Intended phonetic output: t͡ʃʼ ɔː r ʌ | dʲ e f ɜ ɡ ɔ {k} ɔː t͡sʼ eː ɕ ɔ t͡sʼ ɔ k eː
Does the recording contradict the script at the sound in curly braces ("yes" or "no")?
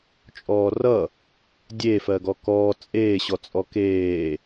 no